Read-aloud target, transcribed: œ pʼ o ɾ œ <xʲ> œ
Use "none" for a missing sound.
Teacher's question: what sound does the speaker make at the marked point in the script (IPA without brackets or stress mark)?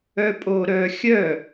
xʲ